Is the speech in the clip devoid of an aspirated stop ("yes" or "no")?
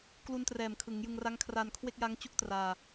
no